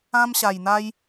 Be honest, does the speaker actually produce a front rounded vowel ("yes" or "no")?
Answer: no